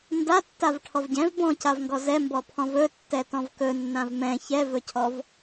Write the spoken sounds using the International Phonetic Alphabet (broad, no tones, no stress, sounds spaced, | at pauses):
n d a tː a v ʈʰ ɔ v ɟ ɛ̃ v b ɔ̃ c a v ŋ ɡ ɔ z ɛ m b ɔ pʰ ɔ̃ v ɵ tː ɛ t ɔ̃ v k ɵ nː ã v m ɛ̃ ç ɛ v ɵ cʰ ɔ v